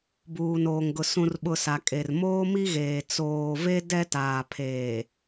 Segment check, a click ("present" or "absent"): absent